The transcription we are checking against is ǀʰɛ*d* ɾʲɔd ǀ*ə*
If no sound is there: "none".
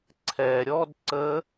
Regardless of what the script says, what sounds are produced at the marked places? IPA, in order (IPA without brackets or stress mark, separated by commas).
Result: none, ə